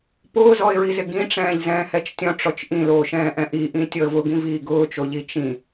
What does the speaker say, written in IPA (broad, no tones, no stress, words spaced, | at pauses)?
pʊːzɔɪ̯ɹizɪ ɡĩʈ͡ʂɛ̃ːʎzɛ̃ː hɛt͡ʃtʲɔ̃ʈ͡ʂɔt͡ʃ ʔĩloːʃɛ̃ːʔɛ̃ ʔiʔĩ tʲɔə̯vʊɡĩ viːɡʊːt͡ʃoʎi t͡ʃĩ